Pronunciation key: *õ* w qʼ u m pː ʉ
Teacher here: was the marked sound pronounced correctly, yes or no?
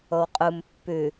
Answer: no